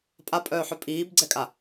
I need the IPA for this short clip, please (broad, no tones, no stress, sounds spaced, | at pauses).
pʼ a pʼ œː ħ œ pʼ iː b ɡ͡ǀ ɛ kʼ a